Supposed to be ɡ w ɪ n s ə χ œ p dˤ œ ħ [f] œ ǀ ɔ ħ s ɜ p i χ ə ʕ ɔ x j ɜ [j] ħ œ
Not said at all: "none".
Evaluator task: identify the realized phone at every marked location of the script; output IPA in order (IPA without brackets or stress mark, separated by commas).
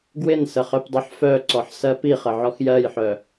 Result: f, j